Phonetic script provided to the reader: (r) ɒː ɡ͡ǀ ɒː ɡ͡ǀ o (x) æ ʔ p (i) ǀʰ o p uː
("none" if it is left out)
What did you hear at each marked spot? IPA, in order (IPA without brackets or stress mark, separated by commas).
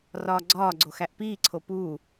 r, x, iː